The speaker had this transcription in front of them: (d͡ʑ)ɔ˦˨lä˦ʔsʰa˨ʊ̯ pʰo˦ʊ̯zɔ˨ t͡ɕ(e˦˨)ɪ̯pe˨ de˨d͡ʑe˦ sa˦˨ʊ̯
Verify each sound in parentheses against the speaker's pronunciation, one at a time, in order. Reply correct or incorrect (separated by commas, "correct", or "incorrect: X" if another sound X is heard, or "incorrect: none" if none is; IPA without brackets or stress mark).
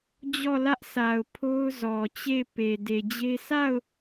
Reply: correct, correct